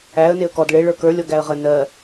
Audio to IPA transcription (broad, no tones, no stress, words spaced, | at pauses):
æə̯ neə̯kɔd ɭe ɭə˞kə˞ lʲɔɡæə̯ʁə nɜ